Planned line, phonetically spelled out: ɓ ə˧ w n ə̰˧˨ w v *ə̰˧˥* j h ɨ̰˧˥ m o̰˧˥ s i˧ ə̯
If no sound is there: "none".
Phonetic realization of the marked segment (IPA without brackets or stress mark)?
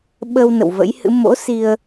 ə̰˧˥